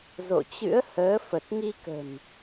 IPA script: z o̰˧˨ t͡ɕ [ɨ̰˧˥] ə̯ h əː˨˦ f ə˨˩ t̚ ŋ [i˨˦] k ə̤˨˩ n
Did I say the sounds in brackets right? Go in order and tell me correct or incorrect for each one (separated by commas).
correct, incorrect